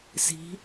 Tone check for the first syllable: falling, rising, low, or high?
rising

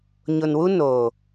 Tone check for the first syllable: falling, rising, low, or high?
low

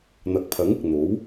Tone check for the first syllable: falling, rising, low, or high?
rising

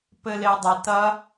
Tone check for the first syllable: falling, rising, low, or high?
low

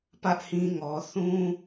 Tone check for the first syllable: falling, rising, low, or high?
high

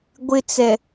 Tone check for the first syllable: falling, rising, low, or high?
high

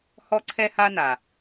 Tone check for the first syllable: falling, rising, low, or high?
high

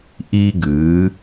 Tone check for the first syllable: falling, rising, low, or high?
high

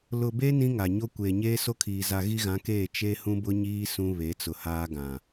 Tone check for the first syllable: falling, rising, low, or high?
low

